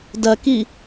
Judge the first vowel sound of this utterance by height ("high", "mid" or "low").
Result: low